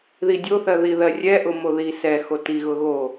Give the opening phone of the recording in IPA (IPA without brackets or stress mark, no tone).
ð